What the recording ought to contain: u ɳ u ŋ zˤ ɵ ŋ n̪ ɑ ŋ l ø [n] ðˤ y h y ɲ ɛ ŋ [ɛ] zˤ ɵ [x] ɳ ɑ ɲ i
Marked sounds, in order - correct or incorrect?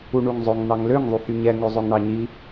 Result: incorrect: ŋ, incorrect: ø, incorrect: ŋ

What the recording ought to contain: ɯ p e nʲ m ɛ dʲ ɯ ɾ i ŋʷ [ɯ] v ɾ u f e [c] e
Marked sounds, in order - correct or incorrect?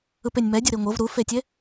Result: incorrect: ɤ, incorrect: tʲ

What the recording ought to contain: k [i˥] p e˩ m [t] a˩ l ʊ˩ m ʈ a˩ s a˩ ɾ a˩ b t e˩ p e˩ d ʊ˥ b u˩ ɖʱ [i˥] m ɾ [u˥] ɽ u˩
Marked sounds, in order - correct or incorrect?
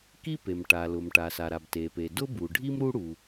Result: correct, incorrect: ʈ, correct, correct

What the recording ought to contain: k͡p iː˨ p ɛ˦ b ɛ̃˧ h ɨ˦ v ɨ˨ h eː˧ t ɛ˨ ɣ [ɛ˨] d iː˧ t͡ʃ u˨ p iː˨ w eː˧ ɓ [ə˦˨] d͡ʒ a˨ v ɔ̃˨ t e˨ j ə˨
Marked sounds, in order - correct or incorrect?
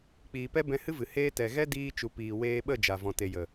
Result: incorrect: ɛ˦, correct

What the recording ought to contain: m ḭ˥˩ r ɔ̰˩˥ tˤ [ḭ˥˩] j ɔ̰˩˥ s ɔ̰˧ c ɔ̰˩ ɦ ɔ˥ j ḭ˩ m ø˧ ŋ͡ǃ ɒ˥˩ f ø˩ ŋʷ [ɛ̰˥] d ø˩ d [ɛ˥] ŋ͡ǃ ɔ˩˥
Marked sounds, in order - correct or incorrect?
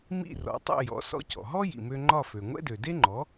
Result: correct, correct, incorrect: e˥

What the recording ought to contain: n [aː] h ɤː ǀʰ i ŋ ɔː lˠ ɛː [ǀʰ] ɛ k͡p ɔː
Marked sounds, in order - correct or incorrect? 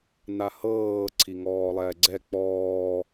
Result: incorrect: a, incorrect: ɡ͡ǀ

